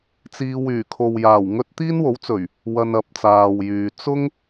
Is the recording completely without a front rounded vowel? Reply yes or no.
no